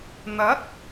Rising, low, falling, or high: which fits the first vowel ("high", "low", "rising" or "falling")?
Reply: rising